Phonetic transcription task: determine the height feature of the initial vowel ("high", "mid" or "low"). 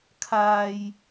low